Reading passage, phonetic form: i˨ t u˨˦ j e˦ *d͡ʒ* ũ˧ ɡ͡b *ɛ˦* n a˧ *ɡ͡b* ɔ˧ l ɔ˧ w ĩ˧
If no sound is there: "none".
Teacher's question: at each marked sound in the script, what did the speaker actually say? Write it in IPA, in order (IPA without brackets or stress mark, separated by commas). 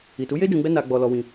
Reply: d͡ʒ, ɛ˦, ɡ͡b